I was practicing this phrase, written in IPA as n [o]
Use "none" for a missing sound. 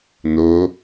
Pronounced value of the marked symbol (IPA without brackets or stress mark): o